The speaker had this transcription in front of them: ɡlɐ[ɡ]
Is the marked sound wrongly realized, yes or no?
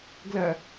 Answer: yes